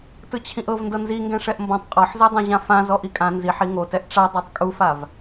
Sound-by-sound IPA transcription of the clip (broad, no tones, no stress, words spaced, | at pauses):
tɯt͡ɕʰĩʔɤvndɤ nziŋɡɛ̃ ʂɛʔmbɔ̃tˤ qʼɔħzɛdˤã ʑãfã zɔʔikʼã nziħi ŋotɛʔ ʈ͡ʂa dˤatˤkʼufav